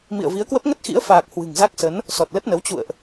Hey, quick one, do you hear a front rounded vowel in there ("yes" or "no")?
no